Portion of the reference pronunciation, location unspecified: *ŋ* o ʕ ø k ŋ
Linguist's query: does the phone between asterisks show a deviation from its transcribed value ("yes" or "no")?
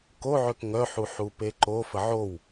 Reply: yes